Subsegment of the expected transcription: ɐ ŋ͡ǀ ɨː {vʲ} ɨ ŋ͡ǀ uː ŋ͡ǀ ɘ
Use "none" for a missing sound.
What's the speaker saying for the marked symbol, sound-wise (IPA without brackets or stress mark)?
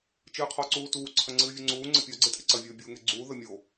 vʲ